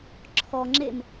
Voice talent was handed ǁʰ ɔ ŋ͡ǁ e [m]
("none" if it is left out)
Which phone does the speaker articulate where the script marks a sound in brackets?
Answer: m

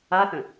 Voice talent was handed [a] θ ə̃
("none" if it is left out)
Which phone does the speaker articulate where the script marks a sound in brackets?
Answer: a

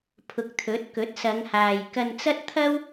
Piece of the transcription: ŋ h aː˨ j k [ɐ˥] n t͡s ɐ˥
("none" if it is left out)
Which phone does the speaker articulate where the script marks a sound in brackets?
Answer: ɐ˧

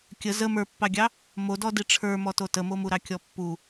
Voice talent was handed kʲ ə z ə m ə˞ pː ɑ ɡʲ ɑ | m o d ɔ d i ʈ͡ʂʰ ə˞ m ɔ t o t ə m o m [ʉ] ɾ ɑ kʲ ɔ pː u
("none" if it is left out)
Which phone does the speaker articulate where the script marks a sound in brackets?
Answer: u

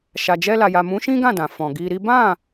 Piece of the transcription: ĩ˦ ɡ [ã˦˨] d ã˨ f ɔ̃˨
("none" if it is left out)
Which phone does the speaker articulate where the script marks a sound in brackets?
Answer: ã˦˨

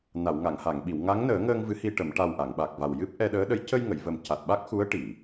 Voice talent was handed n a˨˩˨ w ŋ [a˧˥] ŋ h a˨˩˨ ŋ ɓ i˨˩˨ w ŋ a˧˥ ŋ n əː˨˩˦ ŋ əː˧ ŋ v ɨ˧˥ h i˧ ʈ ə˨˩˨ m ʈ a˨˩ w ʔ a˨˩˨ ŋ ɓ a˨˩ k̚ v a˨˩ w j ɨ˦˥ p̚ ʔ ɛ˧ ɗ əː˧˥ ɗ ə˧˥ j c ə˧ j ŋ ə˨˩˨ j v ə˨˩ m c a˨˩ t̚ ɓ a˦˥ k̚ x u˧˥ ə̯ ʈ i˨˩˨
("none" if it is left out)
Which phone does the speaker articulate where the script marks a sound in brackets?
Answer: a˨˩˨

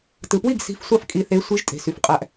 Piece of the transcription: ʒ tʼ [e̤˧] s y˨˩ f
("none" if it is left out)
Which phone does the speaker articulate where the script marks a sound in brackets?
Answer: e̤˨˩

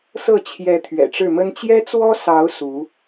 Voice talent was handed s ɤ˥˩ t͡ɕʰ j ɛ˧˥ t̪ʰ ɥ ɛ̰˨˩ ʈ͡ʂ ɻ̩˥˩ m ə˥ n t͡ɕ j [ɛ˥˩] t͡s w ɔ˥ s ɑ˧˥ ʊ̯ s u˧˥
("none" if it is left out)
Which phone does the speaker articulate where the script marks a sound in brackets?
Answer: ɛ˥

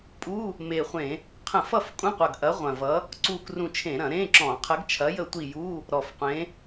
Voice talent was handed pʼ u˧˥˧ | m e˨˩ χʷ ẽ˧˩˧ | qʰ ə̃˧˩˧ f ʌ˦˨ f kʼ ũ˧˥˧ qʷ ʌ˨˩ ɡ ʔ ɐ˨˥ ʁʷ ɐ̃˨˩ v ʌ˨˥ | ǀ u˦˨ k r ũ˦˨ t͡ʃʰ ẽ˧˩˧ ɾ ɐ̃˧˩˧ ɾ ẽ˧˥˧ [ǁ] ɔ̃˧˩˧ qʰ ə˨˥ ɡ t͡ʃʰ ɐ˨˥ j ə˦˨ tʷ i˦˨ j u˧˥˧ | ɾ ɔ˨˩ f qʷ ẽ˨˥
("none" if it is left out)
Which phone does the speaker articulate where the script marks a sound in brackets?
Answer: ǁ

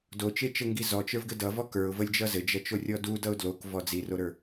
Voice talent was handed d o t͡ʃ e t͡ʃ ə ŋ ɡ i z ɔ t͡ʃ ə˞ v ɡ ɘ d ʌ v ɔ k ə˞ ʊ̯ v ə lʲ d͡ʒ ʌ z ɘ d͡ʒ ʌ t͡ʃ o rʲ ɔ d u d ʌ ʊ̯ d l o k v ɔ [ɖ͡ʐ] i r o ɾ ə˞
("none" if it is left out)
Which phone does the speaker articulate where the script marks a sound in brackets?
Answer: d͡z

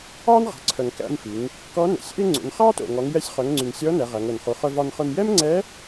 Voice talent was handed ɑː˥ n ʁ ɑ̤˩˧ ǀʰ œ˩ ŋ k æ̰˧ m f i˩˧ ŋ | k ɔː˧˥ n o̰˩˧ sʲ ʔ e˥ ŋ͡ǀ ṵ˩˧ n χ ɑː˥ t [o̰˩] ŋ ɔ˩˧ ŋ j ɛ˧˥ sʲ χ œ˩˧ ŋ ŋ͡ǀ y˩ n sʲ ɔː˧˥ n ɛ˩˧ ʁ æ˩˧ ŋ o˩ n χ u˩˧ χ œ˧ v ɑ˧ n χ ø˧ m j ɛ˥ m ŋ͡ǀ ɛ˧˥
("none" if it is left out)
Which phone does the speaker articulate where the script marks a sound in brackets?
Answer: o̰˩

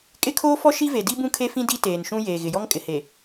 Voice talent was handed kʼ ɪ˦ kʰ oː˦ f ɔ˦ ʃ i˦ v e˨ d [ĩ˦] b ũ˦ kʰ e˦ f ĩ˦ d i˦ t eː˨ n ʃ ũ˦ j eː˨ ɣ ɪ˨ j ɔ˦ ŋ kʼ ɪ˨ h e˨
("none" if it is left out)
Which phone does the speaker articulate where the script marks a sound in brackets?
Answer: i˦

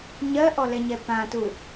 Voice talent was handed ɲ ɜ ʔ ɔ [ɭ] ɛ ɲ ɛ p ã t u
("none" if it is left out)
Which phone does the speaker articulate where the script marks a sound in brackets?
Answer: l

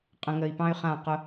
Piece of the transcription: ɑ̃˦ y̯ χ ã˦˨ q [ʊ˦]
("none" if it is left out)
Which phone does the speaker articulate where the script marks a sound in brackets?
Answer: ʊ˦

